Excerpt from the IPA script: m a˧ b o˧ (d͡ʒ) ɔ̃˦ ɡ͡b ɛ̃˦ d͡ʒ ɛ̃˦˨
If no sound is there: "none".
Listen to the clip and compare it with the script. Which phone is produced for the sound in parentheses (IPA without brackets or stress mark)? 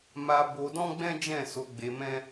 d